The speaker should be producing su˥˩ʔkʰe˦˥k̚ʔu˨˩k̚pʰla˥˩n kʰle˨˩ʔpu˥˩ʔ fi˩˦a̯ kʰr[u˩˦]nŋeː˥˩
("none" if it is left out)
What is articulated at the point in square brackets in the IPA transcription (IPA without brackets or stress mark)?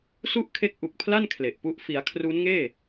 u˦˥